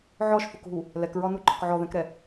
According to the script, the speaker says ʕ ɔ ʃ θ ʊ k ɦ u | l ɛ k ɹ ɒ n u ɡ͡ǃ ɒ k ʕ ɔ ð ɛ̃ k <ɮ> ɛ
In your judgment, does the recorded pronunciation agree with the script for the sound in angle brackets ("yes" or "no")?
no